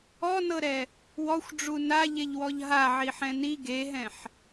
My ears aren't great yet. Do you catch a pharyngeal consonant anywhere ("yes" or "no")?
yes